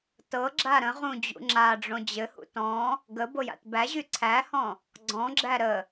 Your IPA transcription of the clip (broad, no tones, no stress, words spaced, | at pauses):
tɤ ɡ͡ǁaɾə̃ʁũ d͡ʑṵŋ͡ǁaɖ͡ʐõ d͡ʑɘhṵ tɔ̃ | ɡə boja̰tbæʑy ǀʰæhɔ̃ | ɡ͡ǀɔ̃ɡ͡ǁæ ɾə